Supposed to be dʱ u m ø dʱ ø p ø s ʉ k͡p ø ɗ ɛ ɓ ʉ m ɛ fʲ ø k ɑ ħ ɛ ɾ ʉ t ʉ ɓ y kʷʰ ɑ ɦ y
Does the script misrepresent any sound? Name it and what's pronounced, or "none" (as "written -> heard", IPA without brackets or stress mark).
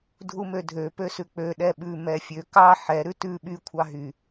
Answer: none